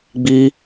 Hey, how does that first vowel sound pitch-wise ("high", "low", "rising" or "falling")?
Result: high